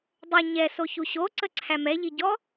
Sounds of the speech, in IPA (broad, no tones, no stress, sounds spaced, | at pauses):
dˤ ʏ ɲ ɛ s o ç u ɕ o ǀ ə ǀʰ æ m ɛ ʎ i ɟ ɔ